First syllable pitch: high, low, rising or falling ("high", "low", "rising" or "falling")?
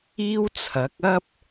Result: high